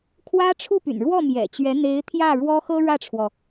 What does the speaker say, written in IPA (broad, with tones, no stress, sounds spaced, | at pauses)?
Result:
kʰ w ä˥ ʈ͡ʂʰ u˥˩ p y̰˨˩ n ɻ w ɔ˥˩ m j ɛ̰˨˩ t͡ɕ ɥ ɛ˧˥ n̪ e˧˥ ɪ̯ t̪ʰ j ä˥˩ ɻ w ɔ˥ x ɤ˥ ɻ ä˥˩ ʈ͡ʂʰ w ɔ˩